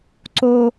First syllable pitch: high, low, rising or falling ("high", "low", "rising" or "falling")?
high